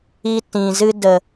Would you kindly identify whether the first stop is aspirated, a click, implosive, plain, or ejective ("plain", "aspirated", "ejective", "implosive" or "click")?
plain